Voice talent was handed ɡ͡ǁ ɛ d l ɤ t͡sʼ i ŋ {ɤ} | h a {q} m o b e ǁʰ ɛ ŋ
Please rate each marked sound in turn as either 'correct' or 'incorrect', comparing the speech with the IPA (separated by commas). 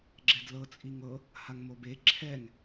correct, incorrect